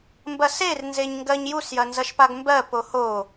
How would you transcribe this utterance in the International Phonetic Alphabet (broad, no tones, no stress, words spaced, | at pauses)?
mbɐser nzeɲŋɡɜɲjus jɐnzɐʃpaɡmbɜ poho